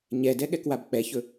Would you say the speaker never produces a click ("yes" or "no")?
yes